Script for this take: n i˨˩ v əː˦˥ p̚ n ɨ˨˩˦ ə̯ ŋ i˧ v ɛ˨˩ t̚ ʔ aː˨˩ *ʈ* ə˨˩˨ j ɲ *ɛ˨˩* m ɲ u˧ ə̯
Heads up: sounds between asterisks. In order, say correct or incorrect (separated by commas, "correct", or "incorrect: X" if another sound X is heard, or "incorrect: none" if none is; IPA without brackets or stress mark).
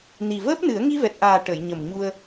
correct, incorrect: ə˨˩